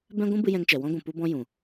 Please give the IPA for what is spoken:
b ɛ̃˦ ɡʷ ũ˦ b ɨ˧ j ɛ̃˧ ŋ t͡ʃ ɛ˨ w ɔ̃˦ ɡʷ ũ˨ p u˦ b ɔ̃˦ j ũ˨

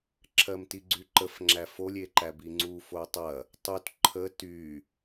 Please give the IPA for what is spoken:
ǁʰ ɜ m t i ɡ͡ǀ y ǃ ə f ŋ͡ǁ æ f o lʲ e ǃ æ b i ŋ͡ǀ u f o tˤ ɐ | tˤ u t ǃʰ ə t y

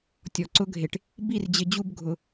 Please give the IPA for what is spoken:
tʲ ɔ˨ ǀ ʊ˦ ɡʱ e˨ ʈ | b i˦˨ r d͡ʑ ɪ˨˦ d͡ʑ u˦ b ɡʱ ʊ˨˦

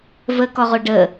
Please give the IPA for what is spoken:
v ə k ɔ ʁ o ɖ ə

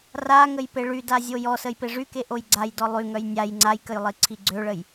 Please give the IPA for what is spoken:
r a ŋ ə j p e ɭ y d a zʲ o j ɔ s ə j p e ʐ y k e ʔ o j ɡ͡ǀ a j d ɔ lˠ y ŋ œ j nʲ a j ŋ͡ǀ a j k ə j lˠ i ǀʰ i ɡ͡ǀ ø ɭ ə j

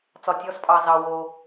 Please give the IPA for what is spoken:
t͡s ɒ˩ tʲ ɔ˨˦ s pʼ ɑ˩ z ɑ˩ w o˩

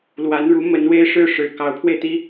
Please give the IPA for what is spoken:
l w a˧˥ n ɻ u˧˥ m ə˧˥ n w e˥ ɪ̯ ʂ ɻ̩˥˩ ʂ ɻ̩˨˩ k ɑ˧˥ ʊ̯ pʰ w e˧ ɪ̯ t̪ i˥

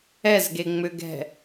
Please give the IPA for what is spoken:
ɛ z ɡ e ŋ͡m ʏ ɡ ɛ̤

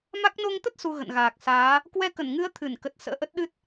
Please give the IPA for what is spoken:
m a˦˥ k̚ n o˧ ŋ t̪ ə˦˥ t̚ s u˧ ɣ ə̰˧˨ n ɣ aː˨˩ k̚ s aː˨˦ | k w ɛ˧ k ə˧˩ n ŋ ɨ˨˦ ə̯ t̪ʰ ɨ˧˩ n k ə˨˩ t̚ s ə̰ː˧˥ ʔ ə˦˥ t̚ ɗ ɨ˦˥ t̚

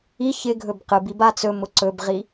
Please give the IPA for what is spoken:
i ç ɪ ɡʱ ɵ b q ɨ b i b a t͡s ɵ m ʊ ǀ ɵ b ʁ i

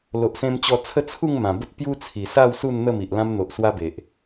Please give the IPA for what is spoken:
l o˨ ʔ s ẽ˧ m t͡ɕ ɔ˧ t͡sʰ ə˥˧ t͡sʰ u˥˧ ŋ m ã˨˩ b ə˦ t̚ p j u˦ t͡sʰ i˨˩ s a˥˧ w s u˥˧ n n̪ ə˥˧ m i˨ ʔ l ã˧ m n̪ o˨ ʔ s w a˦ b e˨ ʔ

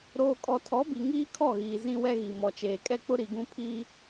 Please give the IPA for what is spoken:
ɾ oː˨ kʼ ɔ˨ tʰ ɔ˨˦ b i˨ ŋ iː˦ kʰ ɔ˦˨ ɣ iː˨ z ĩ˦ w ɛ˦ ɣ i˨ m ɔ˨ t͡ʃ eː˨ kʼ ɛ˦ k͡p ʊ˦ ɾ i˨ ɡ ũ˦ pʰ iː˦

